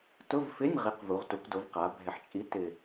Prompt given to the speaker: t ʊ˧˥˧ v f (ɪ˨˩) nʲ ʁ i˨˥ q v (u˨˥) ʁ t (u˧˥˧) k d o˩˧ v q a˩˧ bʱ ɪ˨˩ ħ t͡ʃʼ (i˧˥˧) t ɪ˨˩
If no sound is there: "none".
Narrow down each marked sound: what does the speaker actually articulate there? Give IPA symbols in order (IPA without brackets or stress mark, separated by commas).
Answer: ɪ˧˥˧, u˩˧, u˩˧, i˨˥